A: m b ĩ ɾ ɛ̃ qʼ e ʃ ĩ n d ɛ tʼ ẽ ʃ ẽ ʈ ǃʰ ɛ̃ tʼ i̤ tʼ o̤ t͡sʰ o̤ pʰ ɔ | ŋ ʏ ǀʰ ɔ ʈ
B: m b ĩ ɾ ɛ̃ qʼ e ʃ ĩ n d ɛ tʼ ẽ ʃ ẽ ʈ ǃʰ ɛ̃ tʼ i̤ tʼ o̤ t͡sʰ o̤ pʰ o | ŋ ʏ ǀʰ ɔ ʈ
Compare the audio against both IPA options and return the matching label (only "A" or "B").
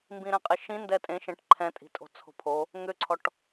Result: B